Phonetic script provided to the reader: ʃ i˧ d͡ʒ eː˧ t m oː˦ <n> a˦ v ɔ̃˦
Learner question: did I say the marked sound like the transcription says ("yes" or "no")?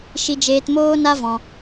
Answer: yes